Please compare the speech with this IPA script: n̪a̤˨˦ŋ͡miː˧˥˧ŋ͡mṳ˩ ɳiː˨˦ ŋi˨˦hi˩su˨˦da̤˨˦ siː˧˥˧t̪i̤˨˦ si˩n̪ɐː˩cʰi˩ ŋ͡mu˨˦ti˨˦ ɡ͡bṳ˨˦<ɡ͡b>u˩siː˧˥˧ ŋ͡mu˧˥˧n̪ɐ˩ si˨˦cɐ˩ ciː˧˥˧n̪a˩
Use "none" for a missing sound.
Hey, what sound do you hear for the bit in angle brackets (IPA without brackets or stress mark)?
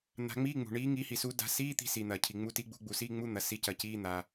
ɡ͡b